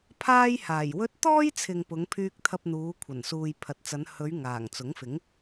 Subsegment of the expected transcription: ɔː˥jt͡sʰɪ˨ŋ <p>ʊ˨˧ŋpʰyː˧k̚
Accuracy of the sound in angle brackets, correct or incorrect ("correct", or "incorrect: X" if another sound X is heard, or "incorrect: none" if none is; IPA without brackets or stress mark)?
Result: correct